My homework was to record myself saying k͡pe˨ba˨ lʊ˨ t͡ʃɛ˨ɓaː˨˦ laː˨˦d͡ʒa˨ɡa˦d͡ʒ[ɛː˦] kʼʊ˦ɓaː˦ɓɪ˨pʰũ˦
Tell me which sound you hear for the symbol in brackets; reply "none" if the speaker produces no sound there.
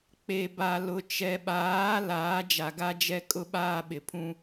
ɛ˦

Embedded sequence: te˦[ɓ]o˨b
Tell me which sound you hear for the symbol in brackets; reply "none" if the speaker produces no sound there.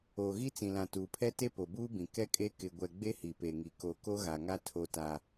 p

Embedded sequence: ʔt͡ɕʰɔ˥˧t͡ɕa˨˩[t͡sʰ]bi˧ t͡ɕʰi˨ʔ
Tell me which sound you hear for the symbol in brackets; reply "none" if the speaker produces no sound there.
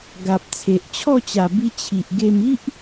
none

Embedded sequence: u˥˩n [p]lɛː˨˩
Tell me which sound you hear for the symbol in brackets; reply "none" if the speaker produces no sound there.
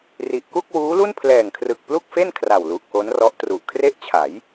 pʰ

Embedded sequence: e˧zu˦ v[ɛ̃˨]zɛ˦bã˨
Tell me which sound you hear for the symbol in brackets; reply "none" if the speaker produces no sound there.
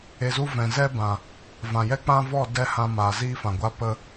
ɛ̃˨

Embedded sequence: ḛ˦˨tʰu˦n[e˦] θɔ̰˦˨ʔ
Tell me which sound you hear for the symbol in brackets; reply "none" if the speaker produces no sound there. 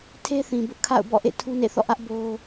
ḛ˦˨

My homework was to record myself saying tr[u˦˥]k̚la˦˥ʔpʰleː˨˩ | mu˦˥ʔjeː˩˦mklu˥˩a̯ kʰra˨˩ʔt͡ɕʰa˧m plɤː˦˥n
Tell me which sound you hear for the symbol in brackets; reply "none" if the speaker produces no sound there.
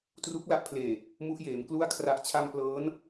u˦˥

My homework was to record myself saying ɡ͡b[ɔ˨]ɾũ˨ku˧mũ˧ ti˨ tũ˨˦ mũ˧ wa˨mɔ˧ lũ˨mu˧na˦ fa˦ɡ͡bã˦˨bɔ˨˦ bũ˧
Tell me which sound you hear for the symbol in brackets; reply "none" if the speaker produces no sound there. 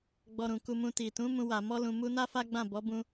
ɔ˧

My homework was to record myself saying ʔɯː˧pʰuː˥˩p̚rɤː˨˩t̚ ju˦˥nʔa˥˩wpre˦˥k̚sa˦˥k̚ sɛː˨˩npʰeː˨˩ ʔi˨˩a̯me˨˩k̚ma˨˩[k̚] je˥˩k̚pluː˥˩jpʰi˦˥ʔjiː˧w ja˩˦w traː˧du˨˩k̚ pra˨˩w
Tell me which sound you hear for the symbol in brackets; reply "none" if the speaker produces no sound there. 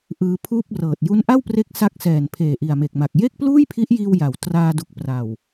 k̚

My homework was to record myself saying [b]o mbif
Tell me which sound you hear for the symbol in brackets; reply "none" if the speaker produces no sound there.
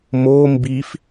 m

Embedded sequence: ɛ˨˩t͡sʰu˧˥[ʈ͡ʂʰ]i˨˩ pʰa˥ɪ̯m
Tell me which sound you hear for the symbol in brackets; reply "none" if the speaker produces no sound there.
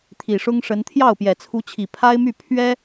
t͡ɕʰ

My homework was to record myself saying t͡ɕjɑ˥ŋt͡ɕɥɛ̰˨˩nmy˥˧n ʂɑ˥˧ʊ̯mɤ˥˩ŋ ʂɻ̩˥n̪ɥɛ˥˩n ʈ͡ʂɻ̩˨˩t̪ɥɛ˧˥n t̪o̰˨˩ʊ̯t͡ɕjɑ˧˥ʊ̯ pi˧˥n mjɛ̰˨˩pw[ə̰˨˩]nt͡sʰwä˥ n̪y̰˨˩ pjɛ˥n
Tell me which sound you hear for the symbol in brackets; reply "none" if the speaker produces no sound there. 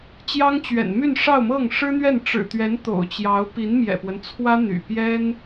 ə˦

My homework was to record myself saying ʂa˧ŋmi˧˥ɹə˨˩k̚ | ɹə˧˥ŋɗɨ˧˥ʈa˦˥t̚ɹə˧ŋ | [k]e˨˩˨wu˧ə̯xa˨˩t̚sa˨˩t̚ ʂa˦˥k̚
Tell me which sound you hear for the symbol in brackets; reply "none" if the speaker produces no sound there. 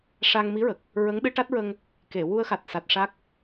k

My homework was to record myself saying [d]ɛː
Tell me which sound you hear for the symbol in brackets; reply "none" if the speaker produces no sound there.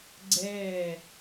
ɡ͡ǀ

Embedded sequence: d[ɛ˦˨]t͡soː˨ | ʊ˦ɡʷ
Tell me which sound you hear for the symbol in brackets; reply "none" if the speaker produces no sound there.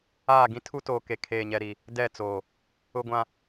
ɛ˦˨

